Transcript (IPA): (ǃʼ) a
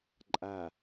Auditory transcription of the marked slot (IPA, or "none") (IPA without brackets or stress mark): ǃʼ